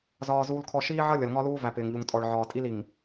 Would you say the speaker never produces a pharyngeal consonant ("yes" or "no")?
no